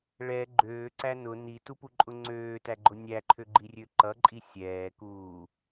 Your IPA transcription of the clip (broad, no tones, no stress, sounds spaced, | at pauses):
ɭ ɛ ɡ͡ǃ øː ǀ æ n ʊ n i t u p u ǃʼ ʊ ŋ͡ǀ øː t æ ɡ͡ǃ ʊ nʲ æ ǃʰ ø ɡ͡ǃ i rʲ ø ǃ ʌ ǃʼ i sʲ ɛː k uː